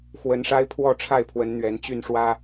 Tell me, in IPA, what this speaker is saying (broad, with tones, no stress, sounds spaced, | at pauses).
x w ə˨˦ n ʂ a˦ ɪ̯ pʰ w ɔ˥˨ ʈ͡ʂʰ a˥˨ ɪ̯ pʰ w ə˨˦ n n̪ ɥ ɛ˨˦ n t͡ɕ y˥˨ n ʂ w ä˦